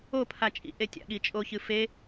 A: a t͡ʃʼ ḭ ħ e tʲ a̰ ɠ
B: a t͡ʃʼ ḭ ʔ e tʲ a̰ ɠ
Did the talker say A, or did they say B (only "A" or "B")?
B